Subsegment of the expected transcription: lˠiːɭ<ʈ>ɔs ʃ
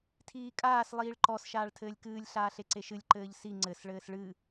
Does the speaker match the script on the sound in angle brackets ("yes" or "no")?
no